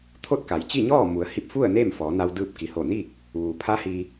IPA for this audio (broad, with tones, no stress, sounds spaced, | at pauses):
t̪ʰ o˥˨ t̚ k a˩˧ j t͡ɕ i˥˨ ɲ ɔː˥˨ m u˩˧ ə̯ h i˧ p̚ f u˥˨ ə̯ n eː˥˨ m f ɔː˩˧ n a˧ w d ɯː˧ p̚ k i˩ h o˧˩ n i˥˨ k̚ | ʋ uː˩ pʰ a˧˥ h i˧